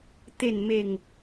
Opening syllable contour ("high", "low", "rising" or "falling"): falling